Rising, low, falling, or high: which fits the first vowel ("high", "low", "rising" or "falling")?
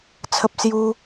high